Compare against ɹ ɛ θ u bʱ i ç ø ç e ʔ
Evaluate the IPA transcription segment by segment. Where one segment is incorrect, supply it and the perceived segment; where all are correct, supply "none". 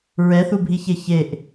ø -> e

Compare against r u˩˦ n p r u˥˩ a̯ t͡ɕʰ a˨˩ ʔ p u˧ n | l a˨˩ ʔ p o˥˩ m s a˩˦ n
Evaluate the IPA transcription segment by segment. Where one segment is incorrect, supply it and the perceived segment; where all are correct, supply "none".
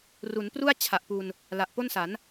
m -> n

